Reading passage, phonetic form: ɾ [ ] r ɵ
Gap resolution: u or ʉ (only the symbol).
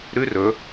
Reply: ʉ